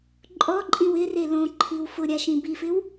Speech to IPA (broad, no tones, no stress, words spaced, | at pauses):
ǃʼɔǃʼĩw ɪre lõǃʰiw fʊɾʲaʃĩ bifɪw